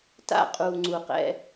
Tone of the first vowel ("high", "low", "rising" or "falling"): falling